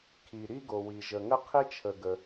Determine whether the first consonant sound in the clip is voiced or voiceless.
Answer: voiceless